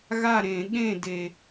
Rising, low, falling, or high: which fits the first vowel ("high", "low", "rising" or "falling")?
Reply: falling